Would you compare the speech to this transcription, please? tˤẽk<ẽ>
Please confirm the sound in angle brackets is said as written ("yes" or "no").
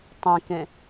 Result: yes